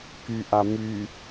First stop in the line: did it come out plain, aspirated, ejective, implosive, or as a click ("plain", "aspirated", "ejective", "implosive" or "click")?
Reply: plain